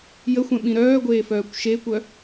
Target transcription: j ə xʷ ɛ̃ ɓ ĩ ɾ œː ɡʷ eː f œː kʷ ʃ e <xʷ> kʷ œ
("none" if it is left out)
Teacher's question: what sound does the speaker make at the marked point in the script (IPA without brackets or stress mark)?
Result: none